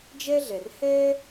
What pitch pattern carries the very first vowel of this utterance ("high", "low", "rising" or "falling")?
high